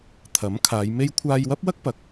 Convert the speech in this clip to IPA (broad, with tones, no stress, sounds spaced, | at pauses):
t̪ʰ ɐ˨˥ m kʰ aː˨˧ j m e˥ j kʷʰ aː˧ j w ɐ˥ p̚ w ɐ˥ k̚ p ɐ˨ k̚